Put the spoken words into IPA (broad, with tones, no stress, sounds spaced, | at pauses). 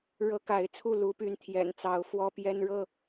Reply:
ɻ ɤ˦ k a˨˦ ɪ̯ t͡sʰ u˥˨ l u˦ p y˦ n t̪ʰ j ɛ̰˨˩ n t͡s ɑ˨˦ ʊ̯ f w ɔ˦ p j ɛ˦ n ɻ ɤ˥˨